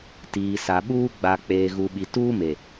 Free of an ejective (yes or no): yes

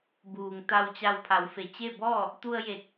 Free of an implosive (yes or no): yes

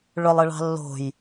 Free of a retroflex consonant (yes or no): no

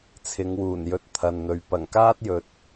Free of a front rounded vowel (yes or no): yes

